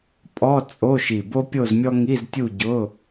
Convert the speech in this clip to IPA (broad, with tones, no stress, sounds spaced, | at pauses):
pʼ ɔ˧˥˧ t͡sʼ o˧˥˧ ʃ i˧˩ b o˥ pʲ o˥˧ z mʲ ɔ˥ ŋ i˧˥˧ z tʲ u˥˧ ɟ ʊ˧˥˧